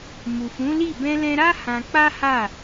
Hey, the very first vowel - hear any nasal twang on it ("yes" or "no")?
no